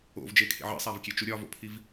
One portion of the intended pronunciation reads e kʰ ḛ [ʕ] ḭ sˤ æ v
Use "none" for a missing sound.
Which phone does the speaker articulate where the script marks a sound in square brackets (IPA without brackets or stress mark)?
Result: ʕ